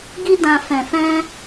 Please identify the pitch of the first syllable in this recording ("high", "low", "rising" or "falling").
high